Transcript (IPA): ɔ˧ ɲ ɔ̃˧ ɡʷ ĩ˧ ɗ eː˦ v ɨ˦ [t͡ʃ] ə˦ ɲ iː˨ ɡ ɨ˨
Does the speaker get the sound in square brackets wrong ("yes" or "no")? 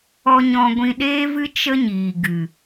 no